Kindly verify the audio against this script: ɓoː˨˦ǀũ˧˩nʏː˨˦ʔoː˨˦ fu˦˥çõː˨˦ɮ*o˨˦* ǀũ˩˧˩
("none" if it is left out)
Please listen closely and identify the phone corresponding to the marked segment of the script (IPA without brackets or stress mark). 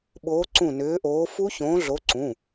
o˨˦